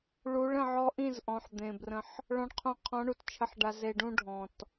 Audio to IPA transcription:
ɭu˨˦ɭə̃˧ ʕɔ˦ ʔĩ˦˨z ʔɔ̃˨ħd̪ẽ˨brə̃˧ħ | ɭɔ̃˧ɳqʰũ˧ qʰɔ̃˨˦ɳu˨t t͡ʃʰə˨ħɖa˨ze˨ɖũ˧ ɖʱɔ̃˨t

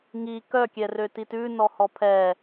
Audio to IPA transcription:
ŋi kœkʲɛrø titʉnɔ hɔpʰɛ

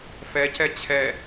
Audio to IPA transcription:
fɛcɛ t͡ɕʰɛ

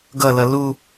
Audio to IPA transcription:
ɡʌlʌ lu

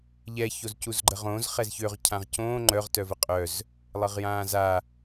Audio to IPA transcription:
ʎɛ çozcuzɡ͡ǃəʁõːz χɛzçøʁ cʰãʁcõː ŋ͡ǃœʁ tœvəqʼœz | lˠəʁjãːza

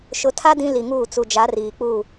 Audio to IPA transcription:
ʃʊ˨˦tʰa˦ dĩ˦li˨ŋuː˦˨ t͡su˨d͡ʒa˨˦riː˨k͡puː˦˨

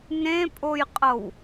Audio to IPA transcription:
nẽpʼojqʼɤw

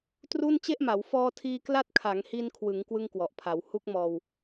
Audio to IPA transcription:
tru˥˩n t͡ɕe˥˩ʔma˩˦w fɔː˧tʰiː˧kla˦˥t̚ kʰa˩˦ŋhi˧nkʰwɯ˩˦ŋ kwɯ˥˩ŋkwɔ˨˩ʔ pʰa˩˦w hu˥˩k̚mɔː˧w

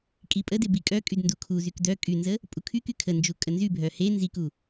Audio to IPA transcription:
kʼipʼəde bikʼœkʼyd ndukʰuzyk dœ kʼynzə | pʼukʰyky kʰənd͡ʒu kʼənzybʱœ he nziku

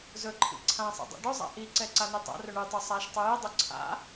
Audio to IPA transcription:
zɵǃʰḭ ǀʰãsˤḭ dˤɛ̰ɖɵzˤa̰ ʔiǀɛ ǀanitˤa̰rɵ ɳʉtˤɵ sˤaʃ tˤʉjidˤɵ ǀʰa̰

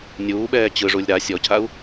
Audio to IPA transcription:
nʲuːɓɛː t͡ɕɯʐulʲ ɾa sʲɔcʰau̯

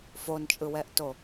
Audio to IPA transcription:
font͡ʃʼɯwɛʔto

